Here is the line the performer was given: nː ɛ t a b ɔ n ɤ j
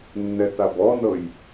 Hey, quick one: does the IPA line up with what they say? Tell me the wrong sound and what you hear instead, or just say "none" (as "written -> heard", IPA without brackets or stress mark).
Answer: none